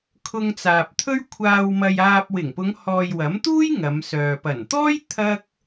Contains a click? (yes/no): no